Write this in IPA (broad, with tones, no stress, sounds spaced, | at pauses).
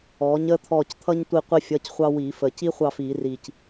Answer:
ɔː˨˥ ɲ əː˥ t̪ʰ ɔː˦˨ c t̪ʰ ʌ˥ ɲ tʷ i˦˨ qʷ i˥ fʲ ʌ˧˥˧ c χʷ ɑ˥ w iː˧˩˧ f əː˨˩ c i˥ χʷ ɑ˦˨ f iː˧˩˧ r iː˨˩ c